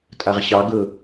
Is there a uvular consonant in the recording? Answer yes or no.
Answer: yes